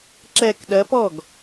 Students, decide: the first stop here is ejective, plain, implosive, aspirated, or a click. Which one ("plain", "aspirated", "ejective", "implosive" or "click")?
click